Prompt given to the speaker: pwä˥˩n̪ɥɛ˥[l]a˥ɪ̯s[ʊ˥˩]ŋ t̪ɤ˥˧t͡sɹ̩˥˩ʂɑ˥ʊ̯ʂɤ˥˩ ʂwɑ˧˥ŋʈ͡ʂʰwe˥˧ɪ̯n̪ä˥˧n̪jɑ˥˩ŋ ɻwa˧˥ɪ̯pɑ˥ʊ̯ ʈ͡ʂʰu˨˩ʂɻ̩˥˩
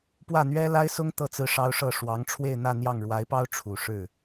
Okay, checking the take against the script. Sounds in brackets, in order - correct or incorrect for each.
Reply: correct, incorrect: ʊ˥

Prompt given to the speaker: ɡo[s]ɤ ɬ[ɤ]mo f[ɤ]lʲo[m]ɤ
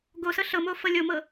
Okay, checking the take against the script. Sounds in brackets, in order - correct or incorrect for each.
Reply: correct, correct, correct, correct

